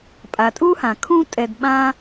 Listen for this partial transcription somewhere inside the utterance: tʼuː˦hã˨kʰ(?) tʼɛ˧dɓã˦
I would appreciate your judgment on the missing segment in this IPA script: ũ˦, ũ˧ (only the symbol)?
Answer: ũ˦